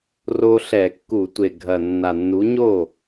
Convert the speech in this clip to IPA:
r o˦ ɬ ɛ˧˩˧ kː u˧˩˧ tʷ e˨˩ ɡʱ ɐ˨˩ nː a˨˩ nː u˨˥ ɲ o˥˩

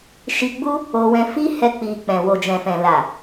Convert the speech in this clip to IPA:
ʃ i˧ ɡ͡b u˦ | o˧ w ɛ̃˧ f i˦ h ɛ˦ k͡p i˧ k͡p ɛ̃˨ w o˨ d͡ʒ ɛ̃˨ f ɛ̃˨ l a˨

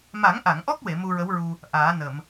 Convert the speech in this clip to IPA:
m a˨˩˦ ŋ ʔ a˨˩˨ ŋ ʔ ɔ˦˥ k̚ w e˨˩˨ m u˧ ɹ ə˧˥ w ɹ u˧ | ʔ aː˨˩˦ n ə˨˩˨ m

